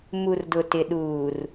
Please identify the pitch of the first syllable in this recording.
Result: low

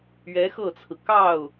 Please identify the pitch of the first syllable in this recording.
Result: rising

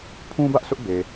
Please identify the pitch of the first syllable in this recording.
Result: high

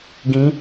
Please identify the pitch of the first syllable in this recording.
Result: rising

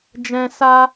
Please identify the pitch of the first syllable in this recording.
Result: high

